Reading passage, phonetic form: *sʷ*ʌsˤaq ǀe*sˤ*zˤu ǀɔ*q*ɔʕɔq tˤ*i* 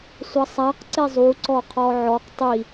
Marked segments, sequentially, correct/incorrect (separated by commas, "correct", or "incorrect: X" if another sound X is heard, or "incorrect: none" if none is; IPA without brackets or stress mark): correct, incorrect: none, incorrect: qʰ, correct